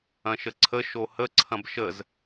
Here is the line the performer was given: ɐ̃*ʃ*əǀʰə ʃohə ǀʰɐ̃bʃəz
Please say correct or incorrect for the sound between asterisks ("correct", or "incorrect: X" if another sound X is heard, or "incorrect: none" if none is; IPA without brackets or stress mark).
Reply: correct